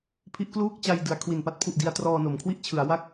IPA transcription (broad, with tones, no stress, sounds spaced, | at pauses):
pʰ i˦˥ ʔ k l uː˥˩ k̚ t͡ɕ a˧ j d ɯ˩˦ a̯ kʰ w i˨˩ n p a˥˩ t̚ pʰ u˨˩ ʔ d i˧ a̯ t r ɔː˧ n o˩˦ m kʰ w i˥˩ ʔ t͡ɕʰ ɯ˩˦ a̯ w a˥˩ k̚